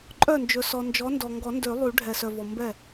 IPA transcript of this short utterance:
ǃʼ œ˥˩ n d͡ʒ ɵ˨ s ɔ˨ n d͡ʒ ɔ˨˥ n d ɔ˨ ŋ ɡ ɔ˨˩˦ n d ø˨˩˦ lˠ y˨˩˦ ɖʱ ɛ˨ s œ˨ v ɔ˨ m b ɛ˥˩

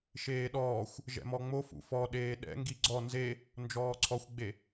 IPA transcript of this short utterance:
ʃ eː ɗ ɔː xʷ | ʒ ɛ̰ m ɔ ŋ͡m o f ṵ f ɔ ɗ eː ɗ ɛ̰ ŋ ɡ i ɡ͡ǀ ɔ n z e | n d͡ʒ ɔː ǀʰ ɔ xʷ ɡ͡b e

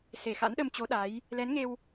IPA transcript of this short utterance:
s e˧˩ x a̰˧˥ n ɗ ə˧ m t͡ɕ o˨˦ ɗ a˨˦ j | l ɛ˨˦ n ŋ e˧ w

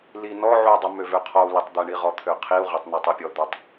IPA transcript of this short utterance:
l i n ɔ ʕ u i̯ dˤ ɛ m ø v ø qʰ ɔ u̯ l e tˤ d̪ ɛ ɳ i ʁ ɔ t̪ʰ ø qʰ i u̯ ʁ e tˤ n ɛ tˤ ɛ pʲ ɔ d̪ ø tˤ

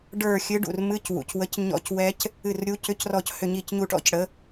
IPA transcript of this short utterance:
ɖ ə˞˦˨ xʲ ɨ˨˥ ɖ ṵ˩ r m ɨ˧˥˧ c w ṵ˩ c w ə˨˥ c ɲ ɔ̰˦˨ c w ɛ˦˥ c | ɨ˦˨ r ɾʲ u˧˥˧ c ʏ˧˥˧ c r ɔ˦˨ c h ʏ˦˨ ɲ i˦˨ c ɲ u˦˨ ʈ ɔ̰˦˥ c ɽ ə˨˥

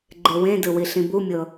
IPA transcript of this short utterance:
ɡ͡ǃ e w ẽ d ɯ w i ɬ ĩ b u mʲ ɤ

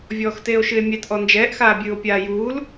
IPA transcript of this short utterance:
vʲ ɔː x t eː o̯ ʃ ɨ e̯ mʲ ɛ t ʔ ɔ n d͡ʒ ɛː ʔ x aː bʲ ɨː o̯ pʲ aː j uː l

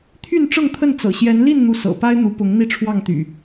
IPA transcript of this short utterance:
t̪ʰ y˥˨ n ʈ͡ʂ ɤ˥˨ ŋ t̪ʰ ə˥˨ n t͡s ɤ̰˨˩ ɕ j ɛ˨˦ n l i˥˨ n n̪ u˨˦ s ɤ̰˨˩ p a˦ ɪ̯ n̪ u˨˦ p ʊ˨˦ ŋ n̪ i˥˨ ʈ͡ʂʰ w ɑ˥˨ ŋ t̪ y̰˨˩

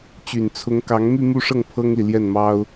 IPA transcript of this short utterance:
t͡ɕ y˨˩ n t͡sʰ ʊ˧˥ ŋ k ɑ˧˥ ŋ m y˥˧ m u˥˧ ʂ ɤ˥˩ ŋ pʰ ɤ˥ ŋ l i˨ l j ɛ˥˩ n m ɑ˥ ʊ̯

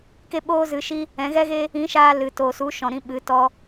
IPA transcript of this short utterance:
k e˦ ɓ oː˦ z ɨ˧ ʃ i˦ | ɛ̃˨˦ ɣ ɛ˦ ɣ e˦ | ĩ˨˦ ʃ aː˧ l ɨ˨ t oː˨ s u˨˦ ʃ ɔ̃˨ ɾ ĩ˧ ɓ ɨ˨˦ t ɔ˧

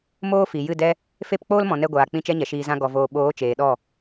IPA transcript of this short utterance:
m oː˦ f i˨ j ɨ˦˨ d ɛ˦ | f e˦˨ p k͡p oː˦ l m ɔ̃˨ n ɛ˧ ɡʷ aː˨ k͡p ĩ˦˨ t͡ʃ ɛ˦ ɲ ɛ˨ ʃ iː˧ z ã˦ ɡ ɔ˧ v oː˧ ɓ oː˨˦ t͡ʃ eː˨ ɗ ɔ˦˨

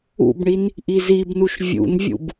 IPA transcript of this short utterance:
ṵ b ɳ i n | ʔ i z i b n u ʃ vʲ ṵ n vʲ ṵ b

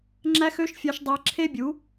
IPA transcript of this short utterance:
ŋ͡ǁ æ˦ x ø˦ ʃ fʲ ɑ˧ ʃ dˤ æ˧ ǁʰ e˦ bʲ u˨˦

